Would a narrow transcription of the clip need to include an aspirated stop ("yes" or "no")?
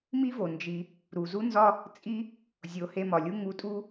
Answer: no